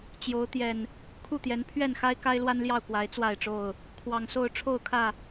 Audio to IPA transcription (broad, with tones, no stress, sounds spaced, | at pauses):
t͡ɕ j o˨˦ ʊ̯ t̪ j ɛ˨˩ n | kʰ u˥˨ t̪ j ɛ˨˦ n pʰ ɥ ɛ˥˨ n x a˦ ɪ̯ k a˦ ɪ̯ l w a˦ n l j ɑ˥˨ ʊ̯ k w a˨˦ ɪ̯ t͡s w a˥˨ ɪ̯ ʈ͡ʂ o˥˨ ʊ̯ | kʰ w ɑ˨˩ ŋ s o˥˨ ʊ̯ ʈ͡ʂʰ o˥˨ ʊ̯ kʰ ä˥˨